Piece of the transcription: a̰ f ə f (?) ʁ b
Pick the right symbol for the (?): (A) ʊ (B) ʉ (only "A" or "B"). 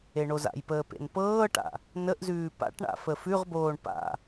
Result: B